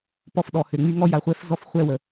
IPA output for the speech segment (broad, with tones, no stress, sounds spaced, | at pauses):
p ɔ˦ f ɗ ɔ˨ h ø˨ ŋ͡m y˥ ŋ ɔ˥ j a˨ χʷ ɛ˥ f z ɔ˥ f χʷ ɛ˦ w ə˩